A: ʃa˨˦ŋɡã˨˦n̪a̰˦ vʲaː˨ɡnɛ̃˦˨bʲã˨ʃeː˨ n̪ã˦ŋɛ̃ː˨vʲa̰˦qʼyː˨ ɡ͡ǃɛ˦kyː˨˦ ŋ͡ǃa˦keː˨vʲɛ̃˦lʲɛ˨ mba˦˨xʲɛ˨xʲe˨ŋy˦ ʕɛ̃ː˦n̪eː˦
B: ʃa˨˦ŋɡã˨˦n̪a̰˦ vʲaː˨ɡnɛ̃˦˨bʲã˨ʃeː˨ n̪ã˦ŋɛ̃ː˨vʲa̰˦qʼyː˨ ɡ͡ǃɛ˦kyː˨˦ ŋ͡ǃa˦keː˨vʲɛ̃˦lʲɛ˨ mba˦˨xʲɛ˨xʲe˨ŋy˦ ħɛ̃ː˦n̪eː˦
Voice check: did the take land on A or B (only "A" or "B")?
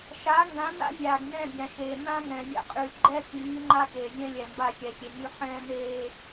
B